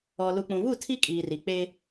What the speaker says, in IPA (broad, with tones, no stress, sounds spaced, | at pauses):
ɔ˨ l u˨ k͡p ũ˨ β u˦˨ tʰ i˦ kʼ iː˨ r i˨ k͡p eː˦